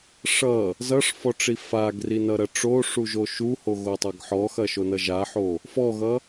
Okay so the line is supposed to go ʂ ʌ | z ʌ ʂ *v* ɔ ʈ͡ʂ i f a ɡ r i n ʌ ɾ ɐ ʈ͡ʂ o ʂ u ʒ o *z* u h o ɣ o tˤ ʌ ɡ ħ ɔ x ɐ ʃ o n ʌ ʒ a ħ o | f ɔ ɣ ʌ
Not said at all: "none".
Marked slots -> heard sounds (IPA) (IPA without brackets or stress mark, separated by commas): f, ʃ